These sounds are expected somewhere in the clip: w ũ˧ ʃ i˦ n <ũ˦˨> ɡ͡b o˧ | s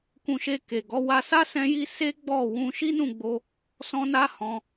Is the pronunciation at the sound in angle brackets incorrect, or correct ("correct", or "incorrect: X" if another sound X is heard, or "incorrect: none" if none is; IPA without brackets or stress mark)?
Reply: correct